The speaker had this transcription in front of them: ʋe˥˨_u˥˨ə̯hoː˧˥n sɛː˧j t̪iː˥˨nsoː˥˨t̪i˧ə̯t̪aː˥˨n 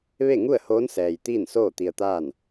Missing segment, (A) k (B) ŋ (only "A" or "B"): B